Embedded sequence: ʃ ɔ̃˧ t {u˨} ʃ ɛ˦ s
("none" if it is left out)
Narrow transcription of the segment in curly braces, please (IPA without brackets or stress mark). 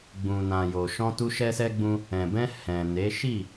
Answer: u˧